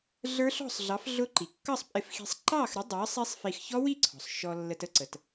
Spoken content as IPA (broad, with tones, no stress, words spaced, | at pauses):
ɮə˞˦˥ɬɔ̤˥˨sˤɮɑ˨˥f ɮʊ˦˥ǃi˩ kːʌ˥˨sˤpʼɪ˧fxi̤˧sˤ ǃɑ˥˨xɾə˨˥ dˤɑ˨˥ sˤi˦˥sˤ fi˧x çɔ˦˥wi˥˨ǀʰɔ̤˩sˤ ʃɔ˧lːə˧t ə˥˨ǀə˩t